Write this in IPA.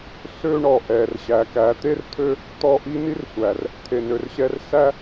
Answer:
s ø˦ ɳ ɔ˨ ʔ ɛ˨ r ɕ æ˨ k æ˨˦ t̪ e˦ r t̪ʰ ø˦ | t̪ ɔ˧ ʔ i˦ n i˦ r sʷ æ˨ r | t̪ʰ e˨ n ø˨ r ɕ ɛ˧ r s æ˦

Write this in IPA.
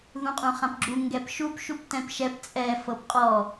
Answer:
ð ũ qʼ ũ χ ã p ɡ͡ǁ u ŋ ɡ ɛ p ʃ u p ʃ u p t ɛ̃ p ʃ ɛ p t͡sʼ ɛ f ɤ p qʼ ɔ

